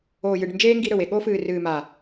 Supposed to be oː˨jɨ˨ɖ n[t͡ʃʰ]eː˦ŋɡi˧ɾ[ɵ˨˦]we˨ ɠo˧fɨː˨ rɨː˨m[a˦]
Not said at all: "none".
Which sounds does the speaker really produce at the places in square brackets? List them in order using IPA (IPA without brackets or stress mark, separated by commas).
d͡ʒ, ɵ˨, a˨